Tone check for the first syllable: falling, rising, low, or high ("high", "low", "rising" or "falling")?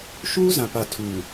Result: high